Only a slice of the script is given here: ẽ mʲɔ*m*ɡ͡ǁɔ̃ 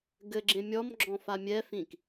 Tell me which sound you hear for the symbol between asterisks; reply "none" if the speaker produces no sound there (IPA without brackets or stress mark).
m